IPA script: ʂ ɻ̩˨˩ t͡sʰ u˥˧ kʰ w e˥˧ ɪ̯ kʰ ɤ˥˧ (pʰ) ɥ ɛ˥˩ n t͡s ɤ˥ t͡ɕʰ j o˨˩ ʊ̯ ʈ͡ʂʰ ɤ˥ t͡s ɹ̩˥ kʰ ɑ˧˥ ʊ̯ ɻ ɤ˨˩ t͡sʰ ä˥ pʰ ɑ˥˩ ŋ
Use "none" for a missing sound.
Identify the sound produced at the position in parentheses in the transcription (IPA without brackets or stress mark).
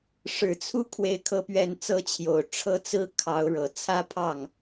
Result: p